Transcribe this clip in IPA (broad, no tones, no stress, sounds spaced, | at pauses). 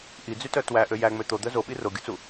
ʔ i d͡z y t œ t w æ ʔ ø j æ ŋ͡m ø t̪ o d̪ œ z o ɓ i r o ɡʲ u t͡s u